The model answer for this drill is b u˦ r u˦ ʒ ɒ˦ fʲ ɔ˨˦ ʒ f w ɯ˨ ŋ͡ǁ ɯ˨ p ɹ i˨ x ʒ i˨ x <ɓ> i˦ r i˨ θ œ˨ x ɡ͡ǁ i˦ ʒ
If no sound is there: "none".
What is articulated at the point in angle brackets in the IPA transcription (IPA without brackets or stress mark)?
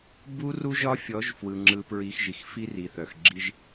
f